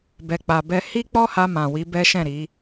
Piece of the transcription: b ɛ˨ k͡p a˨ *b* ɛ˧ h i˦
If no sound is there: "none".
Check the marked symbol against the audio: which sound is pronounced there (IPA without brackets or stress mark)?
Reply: b